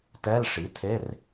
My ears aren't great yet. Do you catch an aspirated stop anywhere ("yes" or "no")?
yes